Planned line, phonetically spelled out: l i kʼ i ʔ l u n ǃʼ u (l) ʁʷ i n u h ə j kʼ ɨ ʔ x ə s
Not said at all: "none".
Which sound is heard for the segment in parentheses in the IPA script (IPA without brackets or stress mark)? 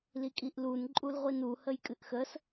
l